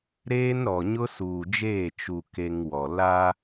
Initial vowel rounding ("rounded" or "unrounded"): unrounded